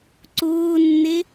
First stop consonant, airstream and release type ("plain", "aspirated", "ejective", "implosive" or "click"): click